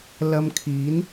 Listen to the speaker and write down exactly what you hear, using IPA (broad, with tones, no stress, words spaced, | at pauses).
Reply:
lɐ˧mkʰiː˨˥n